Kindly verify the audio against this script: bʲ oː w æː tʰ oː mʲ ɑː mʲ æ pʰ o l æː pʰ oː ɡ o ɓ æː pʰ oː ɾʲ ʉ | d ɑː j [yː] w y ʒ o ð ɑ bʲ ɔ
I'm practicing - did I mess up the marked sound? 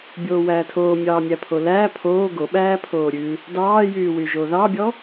no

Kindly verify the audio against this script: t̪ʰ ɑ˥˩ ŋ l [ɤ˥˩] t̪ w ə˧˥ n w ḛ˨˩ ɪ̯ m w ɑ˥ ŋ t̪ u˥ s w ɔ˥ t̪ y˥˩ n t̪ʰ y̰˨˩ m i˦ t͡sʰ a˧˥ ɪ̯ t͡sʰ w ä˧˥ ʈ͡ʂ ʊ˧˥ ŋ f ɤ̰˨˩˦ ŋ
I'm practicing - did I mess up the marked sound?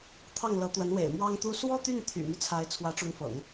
yes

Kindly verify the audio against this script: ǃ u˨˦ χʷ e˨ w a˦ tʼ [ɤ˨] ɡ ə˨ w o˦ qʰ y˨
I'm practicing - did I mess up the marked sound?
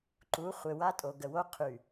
yes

